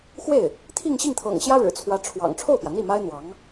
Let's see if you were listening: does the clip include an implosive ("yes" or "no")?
no